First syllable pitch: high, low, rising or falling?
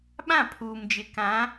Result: falling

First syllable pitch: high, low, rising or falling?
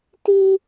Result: high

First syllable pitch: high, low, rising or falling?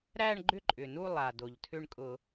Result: falling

